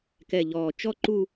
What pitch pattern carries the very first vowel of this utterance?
low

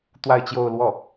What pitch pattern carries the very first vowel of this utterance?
falling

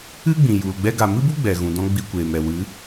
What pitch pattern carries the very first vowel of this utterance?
high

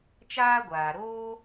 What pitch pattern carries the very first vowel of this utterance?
high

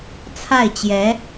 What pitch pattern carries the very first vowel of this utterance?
falling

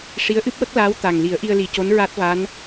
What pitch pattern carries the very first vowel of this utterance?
rising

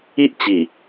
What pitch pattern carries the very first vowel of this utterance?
high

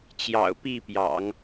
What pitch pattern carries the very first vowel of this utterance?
low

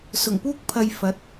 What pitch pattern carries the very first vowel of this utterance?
low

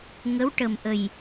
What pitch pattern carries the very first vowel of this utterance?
rising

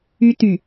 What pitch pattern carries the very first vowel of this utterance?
high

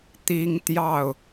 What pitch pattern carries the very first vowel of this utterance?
high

